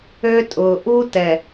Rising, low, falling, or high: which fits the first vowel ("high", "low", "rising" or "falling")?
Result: high